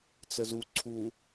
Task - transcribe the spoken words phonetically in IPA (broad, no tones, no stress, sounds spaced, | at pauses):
t͡s ə z u ǀʰ u